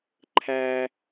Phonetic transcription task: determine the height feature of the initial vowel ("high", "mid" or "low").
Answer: low